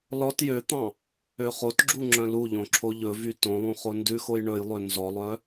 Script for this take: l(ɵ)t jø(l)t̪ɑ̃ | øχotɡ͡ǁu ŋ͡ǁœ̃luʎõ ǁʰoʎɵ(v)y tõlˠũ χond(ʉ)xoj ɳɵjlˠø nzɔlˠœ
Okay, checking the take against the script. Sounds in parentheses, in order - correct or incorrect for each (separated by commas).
incorrect, incorrect, correct, correct